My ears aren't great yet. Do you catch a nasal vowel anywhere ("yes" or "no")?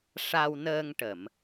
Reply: no